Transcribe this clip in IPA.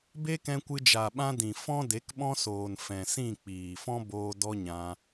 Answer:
b e˦ k ɛ̃˧ kʷ ɨ˧ d͡ʒ a˨ ɓ ã˧ d ĩ˨ f ɔ̃˦ d e˨˦ k ɓ ɔ̃˦ s oː˨ n f ɛ̃˨ s ĩ˦˨ k͡p iː˨ f ɔ̃˦ b oː˦ d ɔ˦ ɲ ã˧

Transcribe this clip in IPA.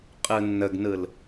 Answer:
qʼ ɯ nː ə ɡ n ɯ l

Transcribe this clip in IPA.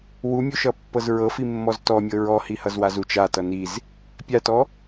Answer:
w u mʲ u ʃ ʌ pː ɤ z ɹ ɤ f i mː ɔ z t ɔ mʲ ɤ ɹ ɔ h i h ʌ z w a z u t͡ʃ a t ʌ n i z | pʲ a t ɔ

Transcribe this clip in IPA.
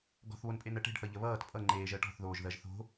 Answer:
ɡ ɔ̤ θ β o n pʼ e n ɜ ʈ e̤ ɖ θ ʌ ʎ ə β ʌː t pʼ ʌ ŋ͡ǃ eː ʒ ɜ ʈ ɔ̤ θ ð oː ʒ ð ɜ ʒ θ o̤

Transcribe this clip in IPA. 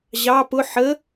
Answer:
ʑ ɑ p ʊ ħ ə

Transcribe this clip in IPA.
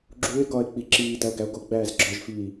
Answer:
ɡ͡ǁ uː e̯ ɡ ɒː e̯ k͡p i ǁ iː d æ o̯ ɡ æ o̯ ɡ o ɡ͡b æː z ɡ͡ǁ ɒ ʒ f iː

